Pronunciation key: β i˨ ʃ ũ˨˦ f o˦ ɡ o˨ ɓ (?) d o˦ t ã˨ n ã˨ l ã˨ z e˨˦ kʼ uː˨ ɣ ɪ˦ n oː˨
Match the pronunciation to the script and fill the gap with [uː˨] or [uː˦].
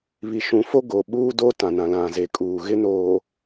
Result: uː˦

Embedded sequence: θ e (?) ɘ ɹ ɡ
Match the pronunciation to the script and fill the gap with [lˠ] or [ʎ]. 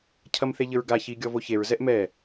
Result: ʎ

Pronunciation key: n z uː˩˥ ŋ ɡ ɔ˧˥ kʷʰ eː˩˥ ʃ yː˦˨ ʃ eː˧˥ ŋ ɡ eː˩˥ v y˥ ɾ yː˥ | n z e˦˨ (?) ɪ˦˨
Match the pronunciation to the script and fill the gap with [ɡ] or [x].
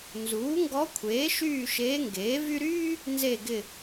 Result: ɡ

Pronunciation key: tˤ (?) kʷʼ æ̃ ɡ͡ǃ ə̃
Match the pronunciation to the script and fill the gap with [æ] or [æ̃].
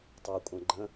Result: æ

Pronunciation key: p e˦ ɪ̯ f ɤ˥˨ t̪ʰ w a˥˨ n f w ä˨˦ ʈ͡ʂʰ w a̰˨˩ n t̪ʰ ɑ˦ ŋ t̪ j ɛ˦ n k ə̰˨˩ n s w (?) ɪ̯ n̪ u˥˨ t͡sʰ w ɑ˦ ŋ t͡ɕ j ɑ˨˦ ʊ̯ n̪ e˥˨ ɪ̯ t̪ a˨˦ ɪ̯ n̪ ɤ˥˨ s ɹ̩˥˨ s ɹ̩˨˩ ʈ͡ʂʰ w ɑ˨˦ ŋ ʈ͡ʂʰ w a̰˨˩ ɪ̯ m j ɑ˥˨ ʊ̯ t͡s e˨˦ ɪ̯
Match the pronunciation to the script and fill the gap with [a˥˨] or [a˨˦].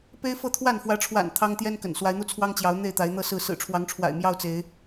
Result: a˨˦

